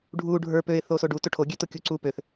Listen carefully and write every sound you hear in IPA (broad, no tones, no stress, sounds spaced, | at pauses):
ɖʱ u ɖʱ ə˞ p ø ɪ̯ θ o s o ɖ u t o ʈʰ o ɡʲ ø t o kʲ u ǀ u p ø θ